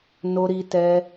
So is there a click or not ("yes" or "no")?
no